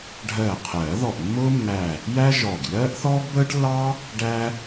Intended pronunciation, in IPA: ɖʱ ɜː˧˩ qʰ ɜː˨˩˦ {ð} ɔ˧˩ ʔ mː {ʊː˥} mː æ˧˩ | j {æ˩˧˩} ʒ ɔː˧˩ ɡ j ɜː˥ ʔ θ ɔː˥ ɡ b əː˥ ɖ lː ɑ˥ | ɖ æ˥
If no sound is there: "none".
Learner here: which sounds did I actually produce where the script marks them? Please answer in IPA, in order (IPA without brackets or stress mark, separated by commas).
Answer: ð, ʊː˥, æ˥